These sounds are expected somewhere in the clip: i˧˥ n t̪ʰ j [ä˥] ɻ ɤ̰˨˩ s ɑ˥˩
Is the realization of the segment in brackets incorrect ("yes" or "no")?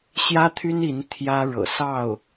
no